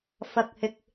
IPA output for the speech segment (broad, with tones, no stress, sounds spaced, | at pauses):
f ɐ˧ k̚ h ɪ˧ k̚